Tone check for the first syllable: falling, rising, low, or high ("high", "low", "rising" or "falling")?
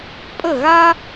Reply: falling